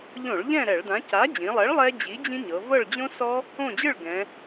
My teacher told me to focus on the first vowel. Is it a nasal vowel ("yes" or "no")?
yes